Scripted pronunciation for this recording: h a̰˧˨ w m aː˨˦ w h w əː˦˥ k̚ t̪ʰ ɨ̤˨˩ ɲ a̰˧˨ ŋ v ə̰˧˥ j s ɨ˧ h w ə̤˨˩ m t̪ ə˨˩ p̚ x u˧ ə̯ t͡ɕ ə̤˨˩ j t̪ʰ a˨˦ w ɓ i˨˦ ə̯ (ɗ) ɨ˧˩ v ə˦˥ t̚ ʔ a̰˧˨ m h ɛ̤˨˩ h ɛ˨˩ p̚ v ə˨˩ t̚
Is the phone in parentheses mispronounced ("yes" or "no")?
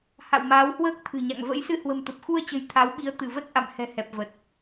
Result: yes